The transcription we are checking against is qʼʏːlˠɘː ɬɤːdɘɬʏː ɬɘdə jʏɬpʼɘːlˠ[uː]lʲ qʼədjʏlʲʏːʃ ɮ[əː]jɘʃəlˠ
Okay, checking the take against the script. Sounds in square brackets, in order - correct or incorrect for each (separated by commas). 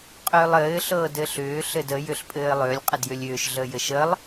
incorrect, correct